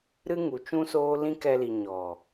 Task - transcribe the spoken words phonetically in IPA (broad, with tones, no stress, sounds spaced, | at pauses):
ɾ ɨ˦ ŋ u˨ t͡ʃ ũ˦ s oː˦ l ĩ˦ k ɛ˧ l i˨ ɲ ɔ˨